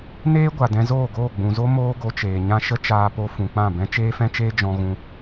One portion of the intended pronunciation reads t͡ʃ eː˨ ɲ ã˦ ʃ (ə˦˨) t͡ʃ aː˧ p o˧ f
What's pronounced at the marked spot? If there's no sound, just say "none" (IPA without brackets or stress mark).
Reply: ə˦